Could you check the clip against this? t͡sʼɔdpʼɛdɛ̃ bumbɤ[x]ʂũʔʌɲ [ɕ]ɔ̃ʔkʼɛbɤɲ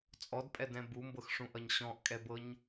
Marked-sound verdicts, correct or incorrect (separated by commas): correct, correct